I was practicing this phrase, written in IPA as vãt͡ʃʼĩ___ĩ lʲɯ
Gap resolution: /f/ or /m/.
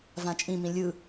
m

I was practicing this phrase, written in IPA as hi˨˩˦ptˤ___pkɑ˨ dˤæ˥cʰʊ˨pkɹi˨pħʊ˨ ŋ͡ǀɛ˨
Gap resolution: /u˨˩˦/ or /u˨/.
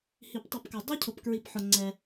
u˨˩˦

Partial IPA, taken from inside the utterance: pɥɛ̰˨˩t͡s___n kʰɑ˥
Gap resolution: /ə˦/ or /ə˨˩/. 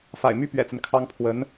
ə˦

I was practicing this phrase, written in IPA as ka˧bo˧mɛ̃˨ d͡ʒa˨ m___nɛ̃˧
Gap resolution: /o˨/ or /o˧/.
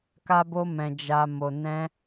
o˨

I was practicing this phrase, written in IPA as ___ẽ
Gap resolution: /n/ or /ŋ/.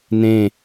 n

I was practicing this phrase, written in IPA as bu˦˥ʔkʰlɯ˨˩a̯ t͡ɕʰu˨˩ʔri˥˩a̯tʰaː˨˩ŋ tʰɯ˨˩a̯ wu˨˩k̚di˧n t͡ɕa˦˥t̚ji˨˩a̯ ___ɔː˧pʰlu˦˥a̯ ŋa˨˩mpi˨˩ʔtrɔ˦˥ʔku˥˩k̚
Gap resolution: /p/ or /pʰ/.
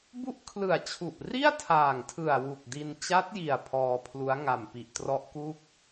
pʰ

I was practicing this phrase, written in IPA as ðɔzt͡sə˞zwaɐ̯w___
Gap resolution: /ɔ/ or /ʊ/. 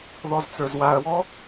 ɔ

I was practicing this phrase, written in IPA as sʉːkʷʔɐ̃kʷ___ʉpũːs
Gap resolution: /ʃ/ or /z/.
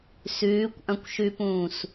ʃ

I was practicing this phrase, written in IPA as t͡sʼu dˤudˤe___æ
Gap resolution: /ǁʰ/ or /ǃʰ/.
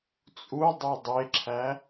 ǁʰ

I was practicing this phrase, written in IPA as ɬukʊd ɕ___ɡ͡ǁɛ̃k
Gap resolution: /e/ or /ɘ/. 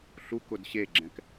e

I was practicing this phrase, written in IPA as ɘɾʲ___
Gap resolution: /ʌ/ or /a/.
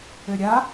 a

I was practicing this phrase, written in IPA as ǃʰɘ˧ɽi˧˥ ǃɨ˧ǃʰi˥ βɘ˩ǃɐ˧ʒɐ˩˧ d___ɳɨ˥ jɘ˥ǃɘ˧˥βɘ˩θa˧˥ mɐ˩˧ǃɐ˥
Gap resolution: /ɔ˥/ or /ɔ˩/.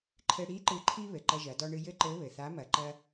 ɔ˥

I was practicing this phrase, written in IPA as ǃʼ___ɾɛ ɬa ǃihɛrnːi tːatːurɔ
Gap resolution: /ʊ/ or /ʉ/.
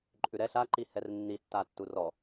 ʉ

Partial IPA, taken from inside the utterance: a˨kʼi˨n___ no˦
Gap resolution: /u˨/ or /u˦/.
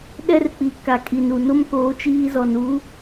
u˨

